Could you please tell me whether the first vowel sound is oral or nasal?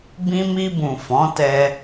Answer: nasal